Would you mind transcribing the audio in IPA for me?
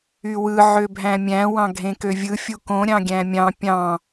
y w ɯ ʕ ø bʱ æ̃ mʲ æ̃ w ɑ̃ ɡʱ ẽ k ø vʲ ɯ fʲ u k õ ɾʲ ɑ̃ ɡʲ æ̃ mʲ ɑ̃ pʲ ɑ̃

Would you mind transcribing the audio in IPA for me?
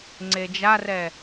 ŋ͡ǀ e d͡ʒ a r ɛ

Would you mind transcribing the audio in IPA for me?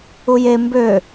u j e m b ø

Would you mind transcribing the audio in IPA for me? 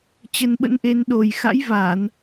t͡ɕ ə˧ n ɓ ə̰˧˥ n ʔ e˧ n ɗ o˨˩ j x a̰˧˥ j v aː˧˩˨ n

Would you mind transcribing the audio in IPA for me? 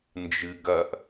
n d͡ʒ ɨ ɡ ɐ ʔ

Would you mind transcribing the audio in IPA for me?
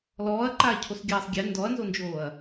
l ɔː ɐ̯ ǃ aː cʰ o s ɡʲ aː sˤ ɡʲ ɛ n d ɔ ɐ̯ n z o n d͡ʒ oː ɐ̯

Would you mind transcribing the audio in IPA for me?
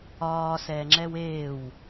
ɒː s ɛː ŋ͡ǁ ɛ w eː w

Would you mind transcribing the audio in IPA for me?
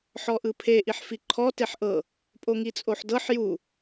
ħ ɔ ʔ ɯ pʰ e ʔ i ħ f i ǃʰ ɔ t e ħ ʔ ɤ | pʼ o ŋ i t͡sʼ o ħ d ɤ ħ j u

